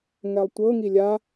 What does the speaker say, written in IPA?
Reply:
ŋ ɛ lˠ tʷ ɤ ŋ i lʲ a

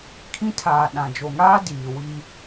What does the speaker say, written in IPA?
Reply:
kʰ ĩ˦ tʰ aː˨ ɗ ã˨ d͡ʒ o˨ ŋ aː˦ d iː˨ w i˦

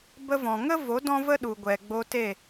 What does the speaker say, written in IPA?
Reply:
b ə˧ v ɔ̃˨ ŋ ə˦ v o˨˦ d ɔ̃˦ v ə˦ ɗ u˨ ɡʷ ɛ˨ ɡ͡b o˧ t e˦˨

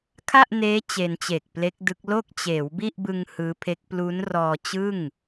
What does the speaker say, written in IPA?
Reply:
kʰ a˥˩ ʔ n eː˦˥ t͡ɕ e˧ n t͡ɕ eː˨˩ k̚ p l e˦˥ k̚ d ɯ˦˥ k̚ l o˥˩ k̚ t͡ɕ eː˩˦ w b i˥˩ ʔ b ɯ˧ ŋ h ɯː˦˥ pʰ e˦˥ k̚ p l u˦˥ n r ɔː˧ t͡ɕ ɯ˥˩ ŋ

